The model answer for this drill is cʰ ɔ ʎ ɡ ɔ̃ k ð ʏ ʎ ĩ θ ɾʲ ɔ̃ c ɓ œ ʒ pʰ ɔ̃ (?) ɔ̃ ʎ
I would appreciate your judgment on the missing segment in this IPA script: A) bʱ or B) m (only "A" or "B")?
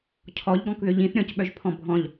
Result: A